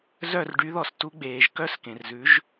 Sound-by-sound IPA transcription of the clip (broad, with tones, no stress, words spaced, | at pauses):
zœ˥˩r ɖy˩˥ðɔ˧˩stu˩˥ɡ͡beː˩ʒ kœ˥˧skẽ˩rzʉ˩˥ʒ